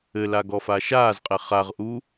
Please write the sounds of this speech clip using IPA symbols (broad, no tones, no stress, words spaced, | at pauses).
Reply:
ɘla ɡɔfaʃaːzqʼɛ χaʁʔu